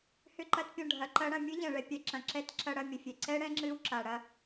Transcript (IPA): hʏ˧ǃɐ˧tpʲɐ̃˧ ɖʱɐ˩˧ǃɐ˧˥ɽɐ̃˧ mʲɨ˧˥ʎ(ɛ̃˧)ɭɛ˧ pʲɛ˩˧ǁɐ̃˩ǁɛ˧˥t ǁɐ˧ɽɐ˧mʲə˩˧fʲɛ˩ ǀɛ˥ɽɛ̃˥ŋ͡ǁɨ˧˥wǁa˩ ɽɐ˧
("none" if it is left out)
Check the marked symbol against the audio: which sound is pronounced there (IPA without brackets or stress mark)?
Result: ɛ̃˩